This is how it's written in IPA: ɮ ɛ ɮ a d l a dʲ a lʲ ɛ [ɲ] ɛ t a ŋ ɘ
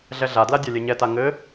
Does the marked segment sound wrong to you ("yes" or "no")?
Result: no